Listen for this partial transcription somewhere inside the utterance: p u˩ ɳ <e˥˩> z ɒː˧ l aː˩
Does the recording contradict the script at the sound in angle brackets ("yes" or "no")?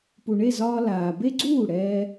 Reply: no